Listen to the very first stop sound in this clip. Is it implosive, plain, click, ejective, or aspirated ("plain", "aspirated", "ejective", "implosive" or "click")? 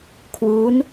aspirated